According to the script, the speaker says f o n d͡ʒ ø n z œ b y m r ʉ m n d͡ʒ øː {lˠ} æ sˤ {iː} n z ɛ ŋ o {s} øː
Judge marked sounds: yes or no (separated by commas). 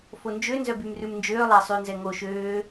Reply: yes, no, no